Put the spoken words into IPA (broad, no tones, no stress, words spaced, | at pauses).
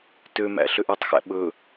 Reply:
tømæ̰ ɬøʔœtˤxæ̰ ɓɵ